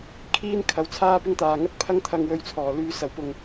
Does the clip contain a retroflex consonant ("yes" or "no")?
no